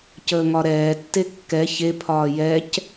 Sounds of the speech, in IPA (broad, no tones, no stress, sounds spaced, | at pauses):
c əː ŋ ɒ ɾ ɛː tː e kː ɛ ç e pʰ ɒː j ɛ c